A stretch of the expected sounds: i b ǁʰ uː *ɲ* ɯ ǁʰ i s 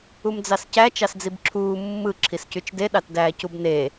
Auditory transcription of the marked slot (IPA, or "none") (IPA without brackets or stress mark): mː